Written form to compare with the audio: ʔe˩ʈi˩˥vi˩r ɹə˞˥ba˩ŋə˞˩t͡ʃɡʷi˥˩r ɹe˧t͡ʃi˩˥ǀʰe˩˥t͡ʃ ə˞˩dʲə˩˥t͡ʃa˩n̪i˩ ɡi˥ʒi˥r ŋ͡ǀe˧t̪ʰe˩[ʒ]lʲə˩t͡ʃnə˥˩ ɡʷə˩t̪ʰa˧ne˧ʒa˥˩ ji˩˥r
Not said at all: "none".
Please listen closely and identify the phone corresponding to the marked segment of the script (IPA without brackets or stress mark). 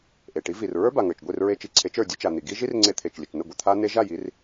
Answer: t͡ʃ